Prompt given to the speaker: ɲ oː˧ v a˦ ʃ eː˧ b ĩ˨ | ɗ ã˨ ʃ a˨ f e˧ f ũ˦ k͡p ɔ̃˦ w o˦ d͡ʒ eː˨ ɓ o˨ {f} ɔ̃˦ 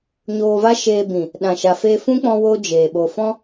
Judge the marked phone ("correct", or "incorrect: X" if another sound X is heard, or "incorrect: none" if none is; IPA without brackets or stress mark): correct